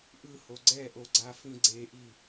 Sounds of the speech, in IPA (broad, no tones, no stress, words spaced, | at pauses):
ʔɯho ɡ͡ǀɛʔoɡ͡ǀafĩ ɡ͡ǀeʔi